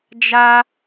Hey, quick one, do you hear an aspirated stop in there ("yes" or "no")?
no